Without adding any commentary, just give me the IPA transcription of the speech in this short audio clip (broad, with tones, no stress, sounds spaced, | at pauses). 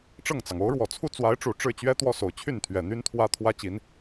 ʈ͡ʂ ɤ˥˩ ŋ t͡s ɑ˩ ŋ o˧˥ ʊ̯ ɻ w ɔ˨˩ t͡sʰ u˥˩ t͡s w a˧˥ ɪ̯ ʈ͡ʂ u˨˩ ʈ͡ʂ ɻ̩˥˩ t͡ɕ ɥ ɛ˥ t̪ w ɔ˥ s o˨˩ ʊ̯ t͡ɕʰ y˥˩ n t̪ʰ ɥ ɛ˨˩ n̪ y˥ n t̪ʰ w ä˥ t̪ʰ w ä˥ t͡ɕ i˧˥ n